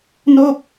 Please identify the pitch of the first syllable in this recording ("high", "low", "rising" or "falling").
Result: falling